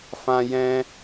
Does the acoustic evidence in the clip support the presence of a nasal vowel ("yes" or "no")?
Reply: yes